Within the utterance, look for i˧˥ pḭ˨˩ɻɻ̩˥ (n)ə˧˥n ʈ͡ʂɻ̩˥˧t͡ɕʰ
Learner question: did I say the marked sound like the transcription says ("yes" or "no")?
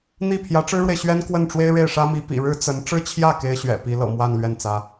no